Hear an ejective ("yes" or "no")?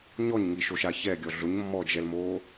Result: no